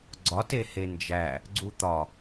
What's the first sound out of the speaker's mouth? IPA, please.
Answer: ɡ͡ǀ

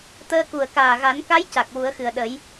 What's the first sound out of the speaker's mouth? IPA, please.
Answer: t̪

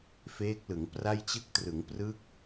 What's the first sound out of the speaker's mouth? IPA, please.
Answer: f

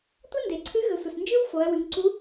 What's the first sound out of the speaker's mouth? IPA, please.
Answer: tʷ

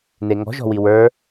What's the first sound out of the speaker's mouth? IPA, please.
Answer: n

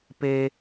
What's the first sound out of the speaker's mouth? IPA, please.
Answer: p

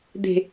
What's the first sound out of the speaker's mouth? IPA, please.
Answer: d̪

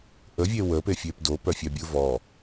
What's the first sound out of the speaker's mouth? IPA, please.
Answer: ʔ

